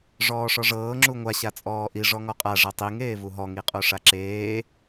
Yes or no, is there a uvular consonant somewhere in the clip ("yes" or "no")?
yes